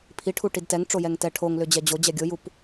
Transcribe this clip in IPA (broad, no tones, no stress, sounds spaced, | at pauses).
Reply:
pʰ i ʈʰ u ʈ i d t ɛ ŋ ʈ͡ʂ o j ɛ ŋ t ɛ ʈʰ o ŋ l ʏ d͡ʑ ɛ d͡ʑ o d͡ʑ ɛ ɡʲ o j u p